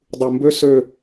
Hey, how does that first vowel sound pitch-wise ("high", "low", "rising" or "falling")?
low